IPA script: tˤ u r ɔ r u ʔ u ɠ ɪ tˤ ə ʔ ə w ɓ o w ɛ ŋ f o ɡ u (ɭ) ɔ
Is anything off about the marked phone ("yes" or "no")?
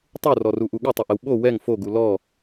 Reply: yes